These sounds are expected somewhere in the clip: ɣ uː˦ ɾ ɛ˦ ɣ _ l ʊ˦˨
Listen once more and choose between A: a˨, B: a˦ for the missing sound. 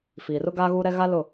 B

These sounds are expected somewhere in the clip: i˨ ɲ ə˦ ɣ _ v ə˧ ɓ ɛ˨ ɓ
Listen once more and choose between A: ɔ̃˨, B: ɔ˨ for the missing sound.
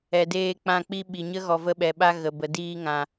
B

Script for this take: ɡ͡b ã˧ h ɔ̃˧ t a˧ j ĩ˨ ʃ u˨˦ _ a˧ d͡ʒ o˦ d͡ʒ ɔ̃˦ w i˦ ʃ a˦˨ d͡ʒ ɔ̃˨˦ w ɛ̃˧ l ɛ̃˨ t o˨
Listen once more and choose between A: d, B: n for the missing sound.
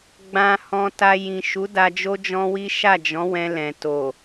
A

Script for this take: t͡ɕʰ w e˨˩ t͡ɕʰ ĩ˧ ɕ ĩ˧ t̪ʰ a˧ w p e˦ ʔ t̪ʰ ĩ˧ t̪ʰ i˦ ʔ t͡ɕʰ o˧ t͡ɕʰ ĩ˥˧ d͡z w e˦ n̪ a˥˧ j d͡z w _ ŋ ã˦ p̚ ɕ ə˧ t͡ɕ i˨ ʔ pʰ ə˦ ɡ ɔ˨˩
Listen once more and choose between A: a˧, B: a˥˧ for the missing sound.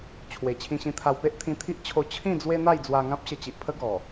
A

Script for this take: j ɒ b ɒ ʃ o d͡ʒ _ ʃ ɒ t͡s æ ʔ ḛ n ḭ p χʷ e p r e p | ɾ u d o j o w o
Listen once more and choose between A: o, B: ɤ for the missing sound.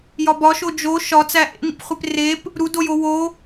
A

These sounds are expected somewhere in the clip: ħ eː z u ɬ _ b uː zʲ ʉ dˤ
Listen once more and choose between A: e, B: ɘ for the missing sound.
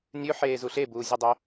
A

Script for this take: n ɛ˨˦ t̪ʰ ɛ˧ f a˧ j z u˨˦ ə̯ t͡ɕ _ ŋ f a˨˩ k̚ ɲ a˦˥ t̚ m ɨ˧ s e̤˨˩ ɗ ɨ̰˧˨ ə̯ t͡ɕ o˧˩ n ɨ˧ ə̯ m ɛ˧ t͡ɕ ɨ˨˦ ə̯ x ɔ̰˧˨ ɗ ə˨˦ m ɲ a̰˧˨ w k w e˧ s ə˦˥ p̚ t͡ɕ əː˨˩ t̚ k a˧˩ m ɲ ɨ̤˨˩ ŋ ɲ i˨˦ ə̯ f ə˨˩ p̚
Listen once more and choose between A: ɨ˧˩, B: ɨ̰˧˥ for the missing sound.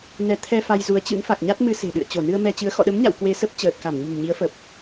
B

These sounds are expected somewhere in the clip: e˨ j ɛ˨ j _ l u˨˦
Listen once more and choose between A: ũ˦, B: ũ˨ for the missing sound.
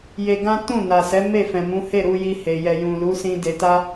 B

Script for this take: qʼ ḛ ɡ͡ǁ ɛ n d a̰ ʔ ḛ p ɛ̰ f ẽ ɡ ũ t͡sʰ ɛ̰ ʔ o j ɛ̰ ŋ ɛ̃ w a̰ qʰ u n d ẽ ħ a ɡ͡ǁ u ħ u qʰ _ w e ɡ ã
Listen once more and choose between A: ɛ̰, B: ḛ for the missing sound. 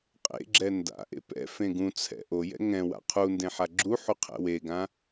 A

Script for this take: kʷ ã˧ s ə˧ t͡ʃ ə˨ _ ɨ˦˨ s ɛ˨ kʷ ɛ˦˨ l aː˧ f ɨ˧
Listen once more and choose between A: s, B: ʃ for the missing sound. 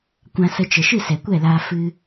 B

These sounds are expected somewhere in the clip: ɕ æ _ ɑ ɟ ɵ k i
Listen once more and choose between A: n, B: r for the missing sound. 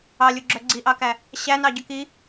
A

